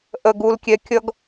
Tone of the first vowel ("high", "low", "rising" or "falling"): low